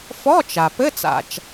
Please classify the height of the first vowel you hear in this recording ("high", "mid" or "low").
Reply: mid